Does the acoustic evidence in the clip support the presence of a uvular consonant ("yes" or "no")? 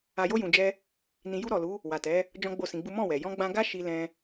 no